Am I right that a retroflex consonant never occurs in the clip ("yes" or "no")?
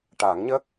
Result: no